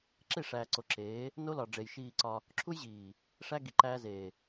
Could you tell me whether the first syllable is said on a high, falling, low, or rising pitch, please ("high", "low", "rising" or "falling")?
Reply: falling